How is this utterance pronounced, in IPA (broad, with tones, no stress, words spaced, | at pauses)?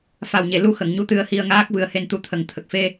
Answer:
fa˨˩wɲe˨˩˨lu˧ xə˨˩˨ŋɲu˧ t̪ɨ˧ə̯hi˧ə̯ŋaː˦˥k̚ vɨ˧ə̯he˧n t̪u˧˥t̪ʰə˨˩ŋ t̪ʰə˨˩k̚fe˧